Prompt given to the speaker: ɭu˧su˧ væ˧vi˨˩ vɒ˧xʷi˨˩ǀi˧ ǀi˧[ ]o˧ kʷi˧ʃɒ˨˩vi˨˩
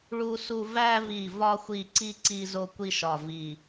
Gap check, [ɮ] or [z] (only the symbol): z